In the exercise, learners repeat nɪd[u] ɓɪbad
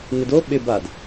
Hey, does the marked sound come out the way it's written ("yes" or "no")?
no